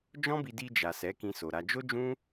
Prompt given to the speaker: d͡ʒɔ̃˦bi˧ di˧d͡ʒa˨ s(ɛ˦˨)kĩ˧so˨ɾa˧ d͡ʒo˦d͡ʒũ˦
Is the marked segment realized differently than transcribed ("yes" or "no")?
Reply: yes